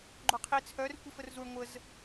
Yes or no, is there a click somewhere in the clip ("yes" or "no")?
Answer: yes